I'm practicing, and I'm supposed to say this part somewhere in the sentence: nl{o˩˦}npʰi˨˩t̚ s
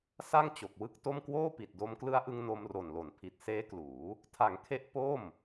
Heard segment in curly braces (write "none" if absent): o˩˦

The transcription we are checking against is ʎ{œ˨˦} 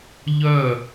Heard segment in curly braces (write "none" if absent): œ˦˨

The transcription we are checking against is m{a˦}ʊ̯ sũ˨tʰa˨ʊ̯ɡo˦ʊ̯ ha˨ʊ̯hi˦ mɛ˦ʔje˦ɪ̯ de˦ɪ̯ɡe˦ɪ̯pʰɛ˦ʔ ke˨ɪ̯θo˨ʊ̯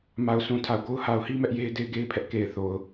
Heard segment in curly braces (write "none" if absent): a˨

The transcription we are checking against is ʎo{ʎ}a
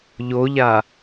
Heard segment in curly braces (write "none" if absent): ʎ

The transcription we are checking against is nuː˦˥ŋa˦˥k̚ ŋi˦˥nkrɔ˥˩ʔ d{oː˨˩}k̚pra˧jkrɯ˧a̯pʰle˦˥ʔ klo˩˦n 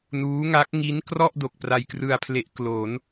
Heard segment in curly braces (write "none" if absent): o˨˩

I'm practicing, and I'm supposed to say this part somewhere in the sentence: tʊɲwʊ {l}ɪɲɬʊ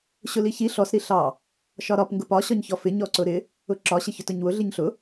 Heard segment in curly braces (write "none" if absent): ɮ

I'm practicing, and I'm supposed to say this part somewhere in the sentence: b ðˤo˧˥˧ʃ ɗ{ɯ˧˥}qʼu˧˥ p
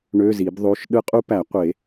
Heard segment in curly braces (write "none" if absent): ɯ˧˥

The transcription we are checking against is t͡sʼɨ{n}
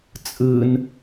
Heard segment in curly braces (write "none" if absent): n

